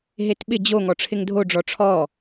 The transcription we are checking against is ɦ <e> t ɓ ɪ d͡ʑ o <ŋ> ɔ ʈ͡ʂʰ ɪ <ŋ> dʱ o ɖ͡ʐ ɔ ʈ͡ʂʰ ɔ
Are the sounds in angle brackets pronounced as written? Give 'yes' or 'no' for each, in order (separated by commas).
yes, yes, yes